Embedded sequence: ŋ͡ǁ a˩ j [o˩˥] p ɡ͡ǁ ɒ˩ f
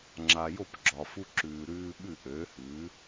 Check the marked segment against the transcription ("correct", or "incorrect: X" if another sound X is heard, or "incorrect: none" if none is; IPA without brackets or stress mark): incorrect: o˥˩